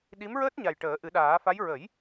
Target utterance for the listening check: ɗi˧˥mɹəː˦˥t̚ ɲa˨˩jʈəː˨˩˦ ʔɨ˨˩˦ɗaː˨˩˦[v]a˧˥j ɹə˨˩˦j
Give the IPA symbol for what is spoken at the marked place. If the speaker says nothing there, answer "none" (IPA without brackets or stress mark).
f